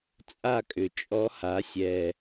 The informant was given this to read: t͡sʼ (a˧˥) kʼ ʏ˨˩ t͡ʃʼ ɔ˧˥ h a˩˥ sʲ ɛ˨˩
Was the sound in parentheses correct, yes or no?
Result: no